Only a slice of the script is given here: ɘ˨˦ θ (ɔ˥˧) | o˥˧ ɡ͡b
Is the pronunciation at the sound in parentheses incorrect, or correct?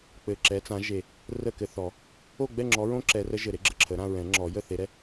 incorrect